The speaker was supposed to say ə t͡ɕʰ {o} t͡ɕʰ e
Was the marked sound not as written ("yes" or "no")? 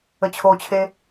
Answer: no